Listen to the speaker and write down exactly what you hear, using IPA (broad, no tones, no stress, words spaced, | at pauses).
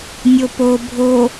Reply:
nʲopo bʱo